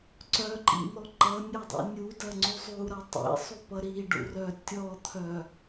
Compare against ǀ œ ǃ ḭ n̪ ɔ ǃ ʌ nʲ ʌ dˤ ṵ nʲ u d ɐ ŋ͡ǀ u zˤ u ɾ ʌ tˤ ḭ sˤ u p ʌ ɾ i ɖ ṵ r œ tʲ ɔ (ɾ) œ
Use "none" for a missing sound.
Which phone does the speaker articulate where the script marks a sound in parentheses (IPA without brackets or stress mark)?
t̪ʰ